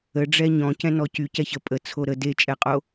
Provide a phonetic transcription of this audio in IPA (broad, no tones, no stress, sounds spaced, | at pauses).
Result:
ə ɖ͡ʐ ɛ ɲ ɔ̃ c ɛ̃ n ɔ c y c ɛ ç ə pʼ ə t͡sʰ o ɾ ə d e t͡ʃʼ ɛ qʼ o